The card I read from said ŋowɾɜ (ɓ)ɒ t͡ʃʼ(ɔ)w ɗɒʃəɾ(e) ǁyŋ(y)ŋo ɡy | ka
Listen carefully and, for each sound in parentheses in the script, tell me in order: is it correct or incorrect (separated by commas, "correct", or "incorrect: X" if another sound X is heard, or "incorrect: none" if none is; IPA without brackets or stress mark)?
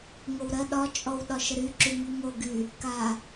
incorrect: ɗ, correct, incorrect: y, correct